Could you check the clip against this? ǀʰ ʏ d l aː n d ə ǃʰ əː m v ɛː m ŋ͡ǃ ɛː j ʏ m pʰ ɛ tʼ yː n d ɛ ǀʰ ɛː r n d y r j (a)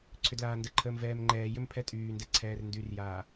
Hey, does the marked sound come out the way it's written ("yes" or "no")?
no